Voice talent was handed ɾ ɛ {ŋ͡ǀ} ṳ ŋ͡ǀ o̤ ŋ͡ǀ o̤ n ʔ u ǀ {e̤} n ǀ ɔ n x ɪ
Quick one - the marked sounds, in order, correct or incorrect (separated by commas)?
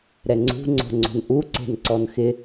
correct, correct